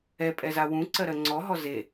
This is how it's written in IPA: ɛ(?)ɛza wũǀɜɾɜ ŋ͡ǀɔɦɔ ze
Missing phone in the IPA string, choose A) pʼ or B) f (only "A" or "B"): A